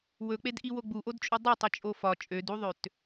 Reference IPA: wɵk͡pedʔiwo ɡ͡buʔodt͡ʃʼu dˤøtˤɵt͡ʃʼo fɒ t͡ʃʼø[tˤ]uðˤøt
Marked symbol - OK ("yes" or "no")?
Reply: no